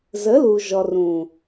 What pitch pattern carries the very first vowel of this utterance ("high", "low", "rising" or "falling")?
rising